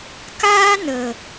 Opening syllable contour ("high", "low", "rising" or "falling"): high